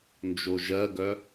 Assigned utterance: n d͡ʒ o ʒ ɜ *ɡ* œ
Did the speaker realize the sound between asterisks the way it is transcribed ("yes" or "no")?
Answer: yes